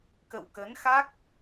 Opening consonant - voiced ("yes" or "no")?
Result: no